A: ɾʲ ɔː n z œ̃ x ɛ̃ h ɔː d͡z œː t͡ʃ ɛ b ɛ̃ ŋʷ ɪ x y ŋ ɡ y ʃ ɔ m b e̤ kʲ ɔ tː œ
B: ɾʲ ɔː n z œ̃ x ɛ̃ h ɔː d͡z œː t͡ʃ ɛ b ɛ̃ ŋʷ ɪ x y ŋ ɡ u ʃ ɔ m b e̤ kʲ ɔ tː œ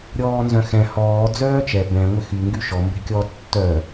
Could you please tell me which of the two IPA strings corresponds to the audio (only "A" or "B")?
A